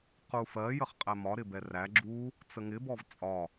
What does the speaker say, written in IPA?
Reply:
qufɜ jəχqʼæmɒ ɾɪbɛræ ɡ͡ǁu | t͡səŋɪ bɔvt͡sʼɒ

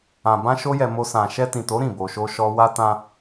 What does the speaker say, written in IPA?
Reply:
ã˧bã˦ʃo˦jɛ˧ mo˧ sã˨ʃɛ˧tĩ˨to˨˦ ɾĩ˦˨bo˧ʃo˦ʃɔ˦ wa˧tã˧

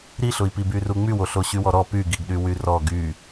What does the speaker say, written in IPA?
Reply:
ɾiɬʊi̯pi byruŋ͡mywo ɬoɕywɔɾɔ pyɡiɡɗy wyrɔ ɡy

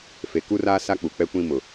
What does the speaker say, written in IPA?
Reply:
fe˨ku˦ra˦ sa˦k͡pu˨k͡pɛ˦ kʷĩ˦ mʊ˨

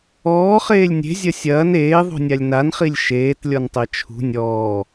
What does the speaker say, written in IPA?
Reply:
ɔːχeːlʲ nʲe̤zʲɐ sʲɐːn eːðˤṳnʲalʲ nanχilʲ ʃeːtlʲɔntˤɛ t͡ʃʰṳ nʲɔː

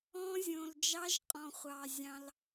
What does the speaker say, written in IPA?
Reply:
ɔ̃˦zʲõ˨l d͡ʒɑ˦ʒqʼɔ̃˨χʷɑ˨ zʲɑ̃˦l

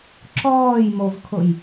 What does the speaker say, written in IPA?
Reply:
ǁɔːjmovkʰʊj

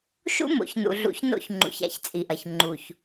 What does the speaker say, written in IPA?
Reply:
ʃṵ˦mo̰˨ç nṵ˨ɮṵ˨˦çno̰˦˨çŋ͡ǃṵ˨ç a̰˦˨çt͡sʼi˨ʔɐ˨ç ŋ͡ǃu˨ç

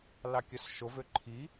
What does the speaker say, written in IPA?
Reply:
lɑkʲœsʃovø ǃʰi

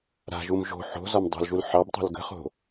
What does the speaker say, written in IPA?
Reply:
ɾa̤ʒum ʒo̤ ħo̤zɒm dˤo̤lʒul ħɑb tˤṳlɡə̤χo̤

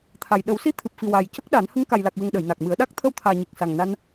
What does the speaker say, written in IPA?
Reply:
t̪ʰa˨˩j ɗə˨˩˦wsi˧t̪ʰɨ˨˩p̚fi˨˩ wa˨˩j cə˦˥k̚ɗa˨˩˦n hə˧ŋka˨˩jla˨˩k̚wə˨˩ŋ ɗə˨˩˨jna˨˩k̚mɨ˨˩˦ə̯ɗa˦˥k̚ t̪ʰə˧wt̪ʰaː˨˩ɲi˨˩k̚ sa˨˩ŋna˧n

